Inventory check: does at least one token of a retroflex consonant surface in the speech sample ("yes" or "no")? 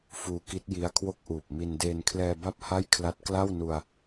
no